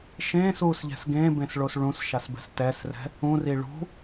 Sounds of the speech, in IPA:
ʃẽːsuːsʎɛ̤s ɡẽːbẽsɭos ɭũsʃasbɛ̤s tɛsrɛ̤ | ũri ɭṳ

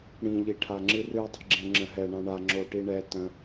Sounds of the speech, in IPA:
ɽĩʎi ʈʰaŋ͡ǁɨrɨ dˤi̤ɡ͡ǁɛ̃ŋ͡ǁə̃ɦɛ ɳãɳa ŋ͡ǁoʈiɳɛ tə̃

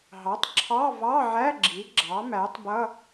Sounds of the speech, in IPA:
ɦɑ˩˥tˤǁʰɑ˧˥˧vɑ˧˥˧ʕæ˧˥˧ ɡ͡ǁi˩˥ɡ͡ǁɑ˩˥mæ˩˥tˤbʌ˧˥˧

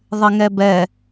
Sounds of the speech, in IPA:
ðˤɪŋɛbɛ

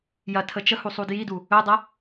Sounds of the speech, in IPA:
jɐ tʰət͡ʃəhu sˤudjidu | ɵdˤɐ

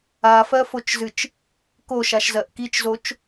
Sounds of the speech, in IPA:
afɜfot͡ʃzɨt͡ʃ | koʃaʃzɜʔ kit͡ʃzot͡ʃ

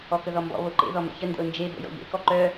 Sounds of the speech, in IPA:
ɔkəðɔmbɔ̰ βoǃḛ ðɔmə̰çə ndə̰ʊ̯nd͡ʒe bo̰jɔ̰ʎḛ kɔǃœ

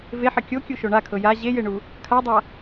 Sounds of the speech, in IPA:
veħɘ kʲokʲuʃo ɳakʰɤ ja ʑejeɳu | kʰadˤa

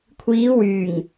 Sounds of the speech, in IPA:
kʷʰiː˨˧wyː˨˩ŋ

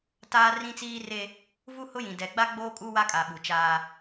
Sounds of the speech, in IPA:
taː˦ rĩ˦t͡siː˦re˦ | vu˦hʊ˦jĩ˨ dɛ˨ɡ͡ba˦ɡ͡boː˦ kʼu˦wa˦kʼa˨ ɓu˨t͡ʃaː˦

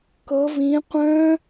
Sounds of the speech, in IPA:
kɤ vĩ qʷœ̃

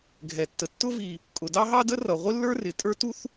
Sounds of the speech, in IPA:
ɡʱɛ˩tːə˩ tːʊ˥ vi˩ | kʼʊ˩dɑ˥ɦɑ˥ də˥rʌ˩ ʁʷɪ˥lːə˞˥rɪ˩ tʼə˞˥tu˥θ

